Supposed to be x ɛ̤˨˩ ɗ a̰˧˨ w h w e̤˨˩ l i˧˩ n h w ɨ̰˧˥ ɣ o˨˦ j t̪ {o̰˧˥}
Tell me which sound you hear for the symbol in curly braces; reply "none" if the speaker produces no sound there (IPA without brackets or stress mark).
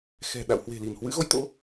o̰˧˥